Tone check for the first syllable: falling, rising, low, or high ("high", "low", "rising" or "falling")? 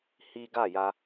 high